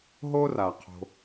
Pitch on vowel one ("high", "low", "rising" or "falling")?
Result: high